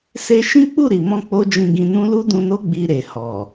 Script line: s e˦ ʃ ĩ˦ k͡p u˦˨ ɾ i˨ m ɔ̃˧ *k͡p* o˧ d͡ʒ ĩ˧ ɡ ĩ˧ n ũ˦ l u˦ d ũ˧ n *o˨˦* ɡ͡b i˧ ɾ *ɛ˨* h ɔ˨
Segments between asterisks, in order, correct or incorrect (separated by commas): correct, incorrect, incorrect